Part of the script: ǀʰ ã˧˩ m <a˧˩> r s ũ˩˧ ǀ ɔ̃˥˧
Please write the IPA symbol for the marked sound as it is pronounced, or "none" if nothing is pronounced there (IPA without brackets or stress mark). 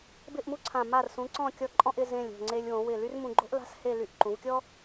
a˧˩